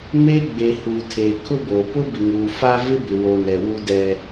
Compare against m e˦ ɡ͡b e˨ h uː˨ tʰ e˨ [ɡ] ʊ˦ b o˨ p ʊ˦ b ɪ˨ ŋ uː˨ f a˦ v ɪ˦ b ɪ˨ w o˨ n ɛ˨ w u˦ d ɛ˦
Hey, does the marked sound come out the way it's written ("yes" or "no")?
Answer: no